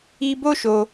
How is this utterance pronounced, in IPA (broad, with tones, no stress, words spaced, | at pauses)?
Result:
i˦ bo˦ʃo˧